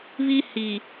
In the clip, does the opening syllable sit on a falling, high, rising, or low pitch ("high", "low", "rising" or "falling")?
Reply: high